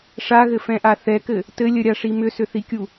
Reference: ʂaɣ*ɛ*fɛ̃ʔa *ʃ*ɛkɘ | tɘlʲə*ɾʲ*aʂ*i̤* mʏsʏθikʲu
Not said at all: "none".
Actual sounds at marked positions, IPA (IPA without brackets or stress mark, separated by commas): ɘ, θ, ɾʲ, i